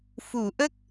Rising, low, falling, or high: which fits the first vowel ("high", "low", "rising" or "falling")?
low